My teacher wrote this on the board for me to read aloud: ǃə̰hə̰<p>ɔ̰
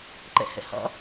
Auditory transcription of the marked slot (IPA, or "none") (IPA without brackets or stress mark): h